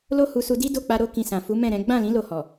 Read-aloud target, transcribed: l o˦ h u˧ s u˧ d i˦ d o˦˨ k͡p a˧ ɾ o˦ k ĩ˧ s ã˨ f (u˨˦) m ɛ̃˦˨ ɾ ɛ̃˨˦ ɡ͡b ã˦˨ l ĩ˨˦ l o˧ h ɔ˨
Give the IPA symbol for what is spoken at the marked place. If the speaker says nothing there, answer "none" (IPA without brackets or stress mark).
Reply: u˨˦